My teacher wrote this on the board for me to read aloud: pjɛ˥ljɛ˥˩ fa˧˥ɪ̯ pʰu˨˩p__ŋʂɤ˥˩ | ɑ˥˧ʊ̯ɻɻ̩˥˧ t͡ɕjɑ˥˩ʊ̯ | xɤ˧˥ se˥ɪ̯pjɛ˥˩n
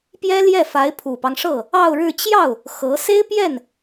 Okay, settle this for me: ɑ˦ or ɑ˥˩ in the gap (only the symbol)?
ɑ˦